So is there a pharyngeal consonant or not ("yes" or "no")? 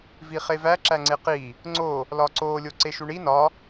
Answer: no